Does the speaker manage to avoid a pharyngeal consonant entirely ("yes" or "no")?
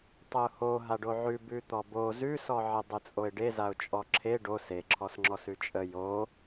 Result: no